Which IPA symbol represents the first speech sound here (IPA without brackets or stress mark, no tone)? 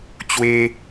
t͡ɕ